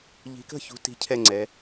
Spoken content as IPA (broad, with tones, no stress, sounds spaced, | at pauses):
ʎ i̤˨˦ k ə̤˥˩ ç ṳ˨˦ t i̤˦ cʰ ɛ˥˩ ŋ͡ǀ ɛ˨˦